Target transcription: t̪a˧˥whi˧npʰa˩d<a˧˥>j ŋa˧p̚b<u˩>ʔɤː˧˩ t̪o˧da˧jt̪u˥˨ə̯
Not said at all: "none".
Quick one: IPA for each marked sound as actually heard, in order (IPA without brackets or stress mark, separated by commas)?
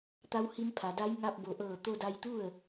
a˧˥, o˩